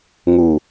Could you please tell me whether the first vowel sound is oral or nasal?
oral